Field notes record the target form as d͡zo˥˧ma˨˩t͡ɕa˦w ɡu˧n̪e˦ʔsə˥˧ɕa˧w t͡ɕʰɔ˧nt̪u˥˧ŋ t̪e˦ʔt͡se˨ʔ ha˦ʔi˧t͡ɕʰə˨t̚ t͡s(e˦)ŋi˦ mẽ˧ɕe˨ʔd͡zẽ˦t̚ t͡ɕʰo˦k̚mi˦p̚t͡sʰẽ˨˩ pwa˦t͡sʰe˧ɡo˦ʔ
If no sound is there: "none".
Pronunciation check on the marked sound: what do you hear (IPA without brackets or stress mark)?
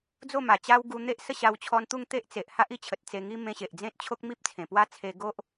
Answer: e˧